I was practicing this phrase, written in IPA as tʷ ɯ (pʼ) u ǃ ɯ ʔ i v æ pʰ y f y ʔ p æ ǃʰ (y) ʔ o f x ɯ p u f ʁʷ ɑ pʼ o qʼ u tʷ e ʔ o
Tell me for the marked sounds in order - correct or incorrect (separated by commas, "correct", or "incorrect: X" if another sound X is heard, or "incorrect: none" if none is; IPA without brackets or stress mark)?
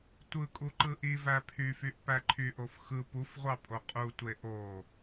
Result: incorrect: kʼ, correct